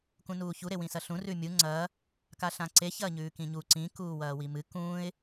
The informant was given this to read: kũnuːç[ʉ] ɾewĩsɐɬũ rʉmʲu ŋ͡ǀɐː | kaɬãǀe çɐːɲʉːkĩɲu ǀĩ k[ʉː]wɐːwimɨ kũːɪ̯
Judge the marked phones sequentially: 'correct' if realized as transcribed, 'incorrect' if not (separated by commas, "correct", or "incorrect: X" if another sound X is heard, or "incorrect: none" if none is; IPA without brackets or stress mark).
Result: incorrect: u, incorrect: uː